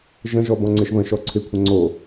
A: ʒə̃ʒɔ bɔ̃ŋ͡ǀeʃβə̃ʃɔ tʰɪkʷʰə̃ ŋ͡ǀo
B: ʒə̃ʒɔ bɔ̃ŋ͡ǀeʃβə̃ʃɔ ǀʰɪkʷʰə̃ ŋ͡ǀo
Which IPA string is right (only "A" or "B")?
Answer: B